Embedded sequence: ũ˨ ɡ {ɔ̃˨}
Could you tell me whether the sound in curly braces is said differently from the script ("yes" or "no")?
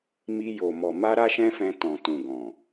no